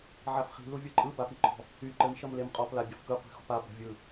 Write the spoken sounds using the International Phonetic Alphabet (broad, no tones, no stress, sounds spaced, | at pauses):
ʕ a f χ i̤ l u vʲ ɯ ǃʼ ɯ b a p i ǃ ɔ̤ | y ǃ ɘ m ʃ ʌ m l e m qʼ ɔ p l a bʲ ʌ f k ɯ qʷ i̤ x ɔ̤ p a b ɔ̤ vʲ ɯ